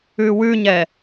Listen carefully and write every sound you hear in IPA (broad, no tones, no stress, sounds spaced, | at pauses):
ʉ w ʉ ɲ ɛ